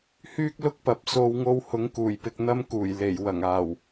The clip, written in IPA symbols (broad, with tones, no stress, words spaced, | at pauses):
hyː˥k̚lʊ˥k̚pɐ˨p̚ so˧w ŋo˧whʊ˨˥ŋ kuː˨˩jpɪ˨k̚ n̪ɐ˧mkuː˨˩j le˨˩j wɐ˨˩ŋaː˨˩w